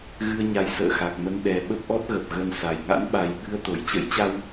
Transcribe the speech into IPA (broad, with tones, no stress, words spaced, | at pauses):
ɣɨ˧ə̯ɲa˨˦j sə̰ː˧˨xa˨˩k̚mə˧n ɗɛ˨˩ ɓə˦˥p̚ʔɔ˦˥t̚ɣə˨˩p̚ ɣə˧nsa˨˩j ŋa̰˧˥nɓa˨˩jɓɨ˧ə̯ t̪o˧˩jt͡ɕə̰˧˥jt͡ɕa˧w